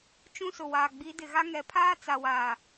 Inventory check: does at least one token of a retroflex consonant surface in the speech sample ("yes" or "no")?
no